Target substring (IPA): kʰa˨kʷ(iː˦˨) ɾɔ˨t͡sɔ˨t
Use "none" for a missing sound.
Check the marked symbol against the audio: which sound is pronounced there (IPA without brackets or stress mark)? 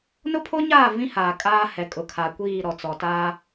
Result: iː˦˨